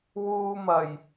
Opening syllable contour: high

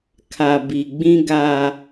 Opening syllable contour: low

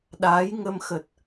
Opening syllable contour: rising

